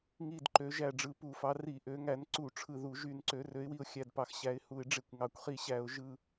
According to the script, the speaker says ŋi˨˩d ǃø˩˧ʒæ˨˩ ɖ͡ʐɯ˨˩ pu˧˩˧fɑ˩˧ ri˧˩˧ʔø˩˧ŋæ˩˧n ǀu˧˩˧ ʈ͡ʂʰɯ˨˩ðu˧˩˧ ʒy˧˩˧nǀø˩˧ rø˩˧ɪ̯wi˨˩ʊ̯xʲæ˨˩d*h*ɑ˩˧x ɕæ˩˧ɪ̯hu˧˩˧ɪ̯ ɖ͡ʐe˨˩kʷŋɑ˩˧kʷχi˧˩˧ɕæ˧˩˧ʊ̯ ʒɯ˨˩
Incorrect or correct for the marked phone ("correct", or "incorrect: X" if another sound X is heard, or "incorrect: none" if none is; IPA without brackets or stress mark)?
incorrect: p